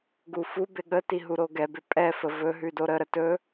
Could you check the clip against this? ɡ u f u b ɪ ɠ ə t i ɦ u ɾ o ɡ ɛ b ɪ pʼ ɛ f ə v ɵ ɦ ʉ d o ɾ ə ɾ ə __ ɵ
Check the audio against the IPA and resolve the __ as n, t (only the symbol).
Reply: t